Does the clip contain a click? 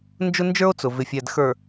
no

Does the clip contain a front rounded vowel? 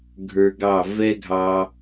no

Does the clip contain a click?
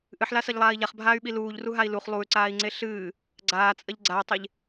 yes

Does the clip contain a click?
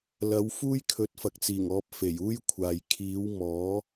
no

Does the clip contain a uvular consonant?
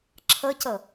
no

